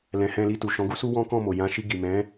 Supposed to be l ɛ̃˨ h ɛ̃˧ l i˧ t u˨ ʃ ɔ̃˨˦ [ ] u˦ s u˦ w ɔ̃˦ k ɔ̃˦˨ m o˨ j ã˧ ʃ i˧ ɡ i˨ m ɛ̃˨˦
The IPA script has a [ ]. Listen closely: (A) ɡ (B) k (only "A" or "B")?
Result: A